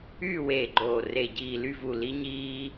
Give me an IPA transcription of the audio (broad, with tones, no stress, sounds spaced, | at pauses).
yː˦˨ w eː˨˩ ɡ͡ǃ oː˨˩ r e˨˩ ɟ iː˨˩ l y˦˨ v u˨˩ l i˦ ɲ iː˦